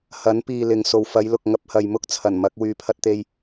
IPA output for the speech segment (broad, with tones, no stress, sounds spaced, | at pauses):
h ɐ˨˥ n p iː˨ l ɪ˨˧ ŋ s o˨ w f ɐ˨˧ j l ʊ˨ k̚ ŋ ɐ˧ p̚ h ɐ˨ j m ʊ˥ k̚ t͡sʰ ɐ˨˩ n m ɐ˧ k̚ w yː˧ pʰ ɐ˥ t̚ t̪ e˥ j